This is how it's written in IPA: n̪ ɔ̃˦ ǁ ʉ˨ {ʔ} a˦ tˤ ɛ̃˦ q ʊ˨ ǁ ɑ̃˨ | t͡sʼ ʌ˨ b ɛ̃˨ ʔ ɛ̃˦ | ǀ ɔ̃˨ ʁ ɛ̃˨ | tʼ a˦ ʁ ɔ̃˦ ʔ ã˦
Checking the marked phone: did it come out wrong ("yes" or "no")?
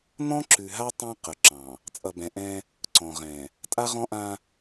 yes